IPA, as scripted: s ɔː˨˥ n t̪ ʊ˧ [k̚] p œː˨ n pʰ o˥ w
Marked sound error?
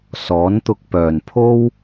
no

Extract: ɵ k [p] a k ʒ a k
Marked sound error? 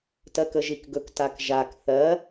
yes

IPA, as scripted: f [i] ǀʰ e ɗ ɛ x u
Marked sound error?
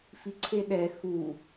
no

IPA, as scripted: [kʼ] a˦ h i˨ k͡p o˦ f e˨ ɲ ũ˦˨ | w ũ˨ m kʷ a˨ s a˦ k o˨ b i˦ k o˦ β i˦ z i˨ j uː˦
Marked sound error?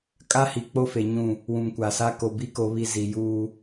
no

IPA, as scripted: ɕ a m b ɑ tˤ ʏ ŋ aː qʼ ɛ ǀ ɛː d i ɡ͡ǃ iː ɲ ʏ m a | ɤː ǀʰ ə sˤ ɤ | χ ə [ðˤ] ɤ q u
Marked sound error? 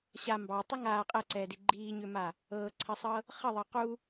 no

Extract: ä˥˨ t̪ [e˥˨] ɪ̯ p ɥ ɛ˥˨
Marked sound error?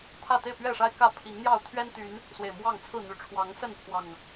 no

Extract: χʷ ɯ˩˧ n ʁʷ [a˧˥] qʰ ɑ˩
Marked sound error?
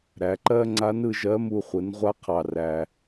no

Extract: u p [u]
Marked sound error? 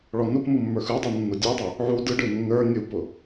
yes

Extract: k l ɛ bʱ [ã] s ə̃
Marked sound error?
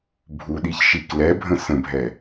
yes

